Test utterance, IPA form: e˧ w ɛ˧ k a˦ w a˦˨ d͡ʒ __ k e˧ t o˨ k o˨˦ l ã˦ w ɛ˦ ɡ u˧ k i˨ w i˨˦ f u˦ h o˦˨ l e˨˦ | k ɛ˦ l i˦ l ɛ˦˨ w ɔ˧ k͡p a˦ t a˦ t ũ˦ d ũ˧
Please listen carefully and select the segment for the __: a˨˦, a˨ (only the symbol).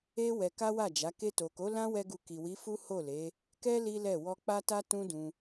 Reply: a˨˦